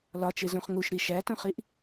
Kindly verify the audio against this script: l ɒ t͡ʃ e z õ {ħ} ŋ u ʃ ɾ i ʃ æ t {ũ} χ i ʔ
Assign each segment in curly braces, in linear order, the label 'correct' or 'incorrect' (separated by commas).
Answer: incorrect, incorrect